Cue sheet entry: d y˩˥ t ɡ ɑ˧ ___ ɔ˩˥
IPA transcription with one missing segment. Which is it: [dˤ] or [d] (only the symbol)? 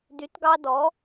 d